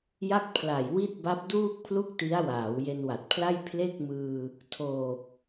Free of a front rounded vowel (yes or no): yes